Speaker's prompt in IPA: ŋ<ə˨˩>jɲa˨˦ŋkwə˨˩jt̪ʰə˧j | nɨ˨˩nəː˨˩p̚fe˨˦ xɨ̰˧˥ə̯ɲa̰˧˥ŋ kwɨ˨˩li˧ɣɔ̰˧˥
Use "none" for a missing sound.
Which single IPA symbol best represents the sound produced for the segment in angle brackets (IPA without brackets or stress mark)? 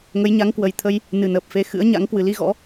ə˨˦